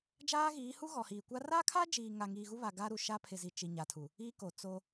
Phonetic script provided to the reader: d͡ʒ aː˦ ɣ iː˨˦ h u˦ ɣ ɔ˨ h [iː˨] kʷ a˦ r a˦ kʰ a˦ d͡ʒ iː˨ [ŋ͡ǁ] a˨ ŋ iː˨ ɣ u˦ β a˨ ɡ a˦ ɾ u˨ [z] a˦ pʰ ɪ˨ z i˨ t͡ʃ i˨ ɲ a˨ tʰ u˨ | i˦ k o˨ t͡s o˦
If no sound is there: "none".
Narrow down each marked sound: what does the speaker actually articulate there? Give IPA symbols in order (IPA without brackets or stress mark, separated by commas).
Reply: iː˨, ŋ, ʃ